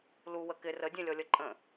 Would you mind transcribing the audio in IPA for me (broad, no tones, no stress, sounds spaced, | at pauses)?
l u w ə k ɪ r ə dʲ ɛ̃ lʲ ɔ lʲ ʌ ǃʼ ə̃